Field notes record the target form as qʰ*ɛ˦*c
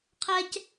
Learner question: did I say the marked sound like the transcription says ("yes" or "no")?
yes